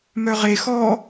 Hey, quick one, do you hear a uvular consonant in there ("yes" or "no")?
yes